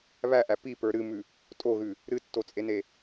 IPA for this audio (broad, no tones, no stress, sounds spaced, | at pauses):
β æ ʔ æ p i p ə˞ ɾ ɨ m ʉ | tʼ o ɣ ʉ | ɾ ɨ tː o t͡sʼ e n e